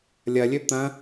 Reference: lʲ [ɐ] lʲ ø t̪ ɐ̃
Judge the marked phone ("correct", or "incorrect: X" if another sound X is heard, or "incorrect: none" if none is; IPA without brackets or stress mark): correct